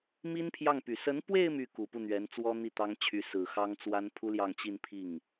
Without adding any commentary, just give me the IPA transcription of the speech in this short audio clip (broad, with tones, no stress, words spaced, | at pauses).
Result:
mi˥npʰjɑ˥˩ŋpy˨˩ sə˧˥npwe˥˧ɪ̯ my˥˩ku˨˩ pu˥˩n̪ɥɛ˧˥nt͡swɔ˥n̪i˥˩ t̪ɑ˥ŋ t͡ɕʰy˧˥sɹ̩˨˩xɑ˥ŋ t͡swa˥npʰu˥ ljɑ˥˧ŋt͡ɕi˥˧n pʰi˥˩ŋ